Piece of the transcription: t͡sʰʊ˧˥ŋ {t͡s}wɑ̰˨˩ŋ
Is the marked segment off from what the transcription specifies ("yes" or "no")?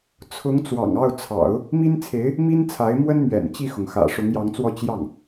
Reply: no